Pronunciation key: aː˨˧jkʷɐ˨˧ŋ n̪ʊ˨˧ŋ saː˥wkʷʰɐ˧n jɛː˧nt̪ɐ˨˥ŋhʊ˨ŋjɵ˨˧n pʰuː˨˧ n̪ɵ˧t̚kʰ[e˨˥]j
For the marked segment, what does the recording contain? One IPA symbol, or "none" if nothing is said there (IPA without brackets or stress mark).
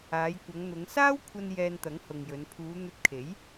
e˨˥